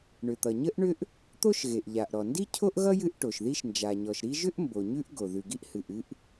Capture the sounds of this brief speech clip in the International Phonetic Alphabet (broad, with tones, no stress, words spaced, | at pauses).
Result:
ɳʏ˩t̪ʌ˩ɲə˥ʔɳʏ˥ʔ | t̪o˥ʃɣe˩ʔʎa˩ʔ ɾɔ˩ndi˥cʰo˥ʔɣʌ˥ jɨ˥ʔʈo˩ʃði˥ʃ nd͡ʒa˩ɲɔ˩ʃɾi˥ ʒʏ˥ʔmbo˩ ɲʉ˥ʔɡo˩ ðʉ˩ɡi˥ʔhɨ˩ʔ ɨ˥ʔ